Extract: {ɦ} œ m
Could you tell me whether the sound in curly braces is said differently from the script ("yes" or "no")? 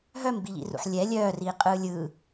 no